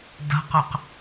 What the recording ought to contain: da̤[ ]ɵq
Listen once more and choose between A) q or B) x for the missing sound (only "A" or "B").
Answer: A